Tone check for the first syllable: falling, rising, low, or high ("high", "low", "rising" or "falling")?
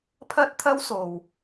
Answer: high